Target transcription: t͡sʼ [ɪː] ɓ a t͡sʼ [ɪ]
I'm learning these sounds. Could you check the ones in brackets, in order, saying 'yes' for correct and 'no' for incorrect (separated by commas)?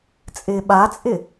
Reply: yes, yes